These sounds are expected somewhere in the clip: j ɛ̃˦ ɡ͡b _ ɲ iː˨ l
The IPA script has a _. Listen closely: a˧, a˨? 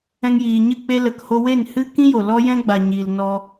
a˨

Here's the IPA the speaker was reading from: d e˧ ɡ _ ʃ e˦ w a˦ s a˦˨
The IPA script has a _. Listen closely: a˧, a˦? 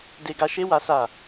a˧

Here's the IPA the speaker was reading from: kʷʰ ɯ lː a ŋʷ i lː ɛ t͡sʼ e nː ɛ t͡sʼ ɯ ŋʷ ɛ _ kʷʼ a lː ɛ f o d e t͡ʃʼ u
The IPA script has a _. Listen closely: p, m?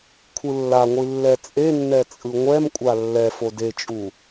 m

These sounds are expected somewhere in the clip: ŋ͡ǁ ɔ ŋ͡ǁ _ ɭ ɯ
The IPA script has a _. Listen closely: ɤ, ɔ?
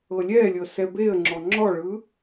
ɔ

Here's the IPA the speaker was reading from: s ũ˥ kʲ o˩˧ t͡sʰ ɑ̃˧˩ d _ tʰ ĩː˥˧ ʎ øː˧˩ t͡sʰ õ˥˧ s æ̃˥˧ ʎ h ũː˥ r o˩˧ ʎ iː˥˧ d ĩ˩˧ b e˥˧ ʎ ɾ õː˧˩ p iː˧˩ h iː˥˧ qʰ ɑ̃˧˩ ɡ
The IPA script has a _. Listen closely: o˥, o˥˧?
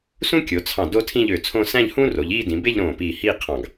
o˥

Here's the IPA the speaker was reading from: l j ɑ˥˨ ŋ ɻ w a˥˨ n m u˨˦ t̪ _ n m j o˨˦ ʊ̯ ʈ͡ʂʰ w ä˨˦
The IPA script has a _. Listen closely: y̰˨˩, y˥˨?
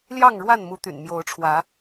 y̰˨˩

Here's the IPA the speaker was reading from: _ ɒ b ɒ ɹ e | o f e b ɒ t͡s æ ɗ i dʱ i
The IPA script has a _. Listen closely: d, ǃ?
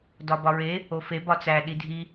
d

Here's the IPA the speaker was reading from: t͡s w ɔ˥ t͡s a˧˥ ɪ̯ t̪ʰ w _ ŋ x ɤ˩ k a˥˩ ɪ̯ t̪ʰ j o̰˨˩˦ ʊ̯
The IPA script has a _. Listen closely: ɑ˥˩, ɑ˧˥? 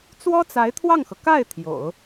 ɑ˥˩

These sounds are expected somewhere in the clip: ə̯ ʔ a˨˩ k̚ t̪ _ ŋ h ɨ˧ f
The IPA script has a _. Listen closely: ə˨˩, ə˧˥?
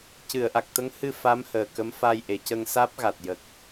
ə˧˥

